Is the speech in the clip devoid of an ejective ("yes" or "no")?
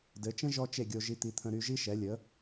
yes